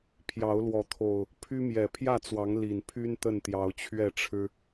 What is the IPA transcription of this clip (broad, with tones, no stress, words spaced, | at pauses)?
pʰjɑ˨˦ʊ̯lwɔ˨˦ t̪ʰo˨˩ʊ̯ | pʰy˦mjɛ˨˩ pʰjä˥˨t͡swɑ˨˦ŋ li˨˩npʰy˦n t̪ə˥˨nt̪jɑ˨˦ʊ̯t͡ɕʰɥɛ˥˨ʈ͡ʂʰɻ̩˦